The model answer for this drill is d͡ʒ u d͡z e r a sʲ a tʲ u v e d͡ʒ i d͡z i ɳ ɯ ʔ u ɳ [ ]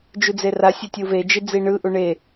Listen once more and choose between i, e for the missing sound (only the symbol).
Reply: e